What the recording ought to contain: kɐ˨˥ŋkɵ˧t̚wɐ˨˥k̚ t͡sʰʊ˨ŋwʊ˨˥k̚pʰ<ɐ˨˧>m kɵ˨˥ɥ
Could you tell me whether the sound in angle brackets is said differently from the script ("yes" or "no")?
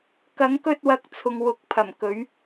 yes